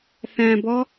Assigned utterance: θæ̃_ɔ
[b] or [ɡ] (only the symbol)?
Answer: b